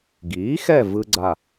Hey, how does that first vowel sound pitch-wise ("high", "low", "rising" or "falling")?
rising